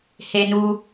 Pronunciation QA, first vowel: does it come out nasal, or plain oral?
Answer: oral